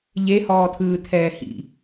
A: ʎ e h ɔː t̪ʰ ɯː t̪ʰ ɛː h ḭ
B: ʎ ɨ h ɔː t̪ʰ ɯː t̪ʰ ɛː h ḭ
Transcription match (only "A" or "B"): A